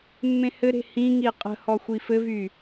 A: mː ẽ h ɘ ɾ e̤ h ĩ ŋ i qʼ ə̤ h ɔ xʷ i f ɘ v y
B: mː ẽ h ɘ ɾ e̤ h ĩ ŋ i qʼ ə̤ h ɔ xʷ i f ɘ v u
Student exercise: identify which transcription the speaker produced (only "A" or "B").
A